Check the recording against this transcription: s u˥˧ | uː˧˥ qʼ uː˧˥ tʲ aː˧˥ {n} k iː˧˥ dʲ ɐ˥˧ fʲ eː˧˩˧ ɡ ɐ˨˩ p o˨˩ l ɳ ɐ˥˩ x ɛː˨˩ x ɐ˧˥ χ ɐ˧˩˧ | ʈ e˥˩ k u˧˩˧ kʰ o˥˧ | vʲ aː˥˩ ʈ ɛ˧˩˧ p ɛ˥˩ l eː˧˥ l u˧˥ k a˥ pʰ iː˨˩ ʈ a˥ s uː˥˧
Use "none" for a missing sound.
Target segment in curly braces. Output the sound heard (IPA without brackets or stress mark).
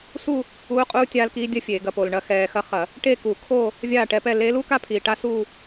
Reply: l